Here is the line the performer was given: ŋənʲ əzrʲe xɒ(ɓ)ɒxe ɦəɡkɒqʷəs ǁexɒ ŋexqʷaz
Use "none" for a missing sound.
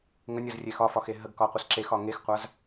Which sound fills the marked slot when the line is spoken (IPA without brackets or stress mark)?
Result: f